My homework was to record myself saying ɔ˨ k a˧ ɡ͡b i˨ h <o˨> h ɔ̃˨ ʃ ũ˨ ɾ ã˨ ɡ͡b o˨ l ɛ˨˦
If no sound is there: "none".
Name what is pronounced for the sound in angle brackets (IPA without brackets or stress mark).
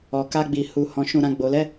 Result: u˨